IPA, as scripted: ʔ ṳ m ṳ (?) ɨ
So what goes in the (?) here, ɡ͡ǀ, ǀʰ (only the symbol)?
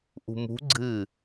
ɡ͡ǀ